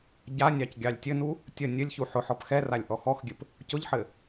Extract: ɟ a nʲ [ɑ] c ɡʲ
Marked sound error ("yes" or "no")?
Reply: no